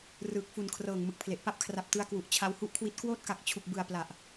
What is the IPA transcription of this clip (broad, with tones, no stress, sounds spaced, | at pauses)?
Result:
r ɯː˨˩ k̚ f u˨˩ n kʰ r ɤː˨˩ ŋ m ɯ˨˩ k̚ pʰ l e˨˩ ʔ p a˥˩ p̚ kʰ r a˨˩ p̚ t ɯ˧ a̯ k w u˨˩ ʔ t͡ɕʰ a˧ w h u˥˩ ʔ kʰ w i˦˥ t̚ k w oː˥˩ t̚ k a˨˩ k̚ t͡ɕʰ u˨˩ k̚ b ɯ˨˩ a̯ p l a˨˩ ʔ